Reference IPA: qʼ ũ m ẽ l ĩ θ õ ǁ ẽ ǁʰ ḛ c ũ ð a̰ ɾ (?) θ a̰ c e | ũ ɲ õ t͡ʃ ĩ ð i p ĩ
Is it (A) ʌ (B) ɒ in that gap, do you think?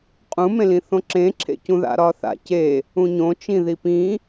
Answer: B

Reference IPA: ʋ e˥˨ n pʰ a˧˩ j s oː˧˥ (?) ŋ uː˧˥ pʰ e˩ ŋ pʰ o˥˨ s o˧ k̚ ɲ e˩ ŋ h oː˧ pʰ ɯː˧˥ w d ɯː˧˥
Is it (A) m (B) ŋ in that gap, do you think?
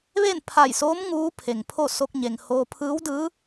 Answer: A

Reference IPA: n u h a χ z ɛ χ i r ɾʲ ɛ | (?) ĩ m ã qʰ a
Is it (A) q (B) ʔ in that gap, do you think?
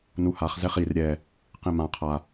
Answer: A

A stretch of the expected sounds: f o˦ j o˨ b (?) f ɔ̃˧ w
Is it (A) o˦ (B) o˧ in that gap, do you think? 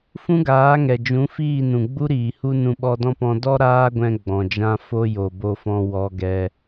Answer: B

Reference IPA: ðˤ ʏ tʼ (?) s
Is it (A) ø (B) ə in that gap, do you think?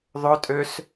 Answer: A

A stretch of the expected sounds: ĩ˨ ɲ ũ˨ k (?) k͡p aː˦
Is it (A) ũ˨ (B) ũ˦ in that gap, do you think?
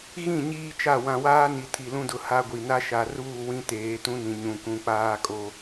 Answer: A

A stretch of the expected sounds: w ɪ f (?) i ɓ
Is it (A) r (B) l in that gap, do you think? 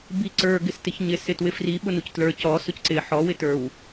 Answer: A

